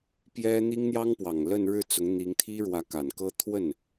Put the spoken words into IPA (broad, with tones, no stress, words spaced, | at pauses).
pjɛ˥ n̪i˥ŋn̪jɑ˥ŋpwɑ˨˩ŋlə˥˧n ɻɻ̩˥˩t͡sʊ˧˥ŋn̪i˧˥ŋt̪ʰi˥ ɻwä˧˥ka˨˩nkɤ˥ t̪ʰwə˥˩n